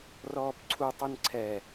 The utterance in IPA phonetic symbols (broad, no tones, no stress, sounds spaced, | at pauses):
r ɔː p ǀʰ u tˤ ɨ n ǀʰ ɛ